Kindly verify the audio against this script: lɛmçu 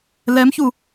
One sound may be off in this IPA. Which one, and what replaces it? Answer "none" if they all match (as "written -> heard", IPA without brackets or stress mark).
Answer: none